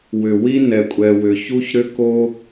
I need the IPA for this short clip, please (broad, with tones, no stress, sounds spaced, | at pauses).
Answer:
w ʏ˨ w i˦ n ɛ˧ kʷʼ ɛ˧ w ʏ˧ ç u˦ ç ɾ ʏ˦ k o˦